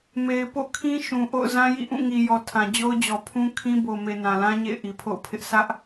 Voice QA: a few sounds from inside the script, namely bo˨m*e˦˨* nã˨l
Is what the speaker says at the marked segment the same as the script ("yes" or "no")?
no